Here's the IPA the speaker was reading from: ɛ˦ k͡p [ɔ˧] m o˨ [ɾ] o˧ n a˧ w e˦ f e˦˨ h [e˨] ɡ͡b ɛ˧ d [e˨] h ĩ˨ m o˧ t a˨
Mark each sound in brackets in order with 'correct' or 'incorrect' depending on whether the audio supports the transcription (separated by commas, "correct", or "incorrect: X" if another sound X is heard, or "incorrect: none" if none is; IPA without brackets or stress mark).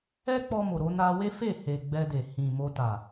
correct, correct, correct, correct